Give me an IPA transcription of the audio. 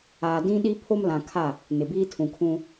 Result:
aː˨ dĩ˦ɗi˦ pʰo˦mlã˨kʰa˦˨ | nɪ˨biː˦tʰũ˨kʰũ˦

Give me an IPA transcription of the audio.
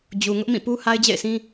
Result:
d͡ʑu˨ ŋʊ˦ʔmĩ˦˨pu˦ ha˦ɪ̯d͡ʑḛ˦˨ɪ̯sʰĩ˦

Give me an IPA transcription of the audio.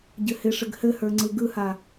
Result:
ɟɘhɪʂɘɡ hɘhə˞ ŋ͡ǀɯɡɯha

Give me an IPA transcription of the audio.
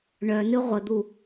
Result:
ɳœnɨ ʁʷəd̪u

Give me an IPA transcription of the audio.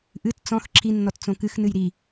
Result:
ʔɨt t͡sɔ̃x ǁʰinːɔt t͡sõkɨxnɨj ɾi

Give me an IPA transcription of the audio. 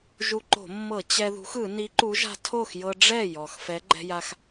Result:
ʒu˧ǃo̤˧˩˧mːɤ˧˩˧ t͡ɕɛ˧ðṳ˨˥xɯ˧˩˧ ni˨˥ǃu˨˥ʒa̤˧ tʰo˥˩xjɤ˧ ɖ͡ʐɛ˥˩jɔ˩x fɛ˨˥ ɡ͡ǃɛ̤˧ja˧x

